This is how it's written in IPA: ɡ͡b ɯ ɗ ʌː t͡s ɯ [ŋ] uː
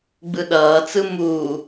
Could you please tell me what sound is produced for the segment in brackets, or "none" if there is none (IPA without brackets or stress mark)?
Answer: m